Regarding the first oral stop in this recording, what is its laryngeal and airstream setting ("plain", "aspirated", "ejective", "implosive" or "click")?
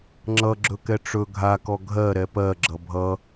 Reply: click